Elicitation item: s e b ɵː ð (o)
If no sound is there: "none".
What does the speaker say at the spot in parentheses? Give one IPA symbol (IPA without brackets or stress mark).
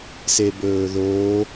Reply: o